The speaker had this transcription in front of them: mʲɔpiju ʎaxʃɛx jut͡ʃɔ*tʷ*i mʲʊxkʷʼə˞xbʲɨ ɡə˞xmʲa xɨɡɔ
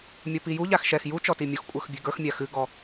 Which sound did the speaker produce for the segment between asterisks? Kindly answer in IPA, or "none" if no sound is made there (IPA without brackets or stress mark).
t